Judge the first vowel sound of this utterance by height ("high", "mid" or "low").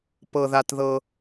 mid